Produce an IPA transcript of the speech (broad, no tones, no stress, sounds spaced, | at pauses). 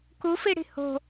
k u f i ɽ i̤ h o̤